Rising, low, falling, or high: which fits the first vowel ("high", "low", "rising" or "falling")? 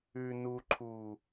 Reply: low